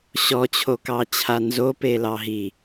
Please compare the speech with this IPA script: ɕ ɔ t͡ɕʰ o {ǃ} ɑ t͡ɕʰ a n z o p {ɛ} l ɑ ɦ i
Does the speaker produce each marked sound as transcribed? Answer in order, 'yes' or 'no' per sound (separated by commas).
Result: no, no